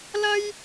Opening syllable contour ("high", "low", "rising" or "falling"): high